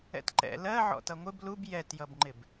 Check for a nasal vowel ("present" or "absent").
absent